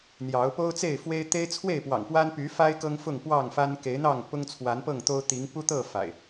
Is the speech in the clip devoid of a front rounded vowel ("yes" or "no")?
no